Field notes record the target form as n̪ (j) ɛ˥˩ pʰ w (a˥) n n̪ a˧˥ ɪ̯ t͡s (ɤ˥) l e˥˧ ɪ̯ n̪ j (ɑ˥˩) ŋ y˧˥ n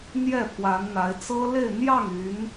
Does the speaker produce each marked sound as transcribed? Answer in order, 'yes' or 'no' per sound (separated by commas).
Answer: yes, no, yes, yes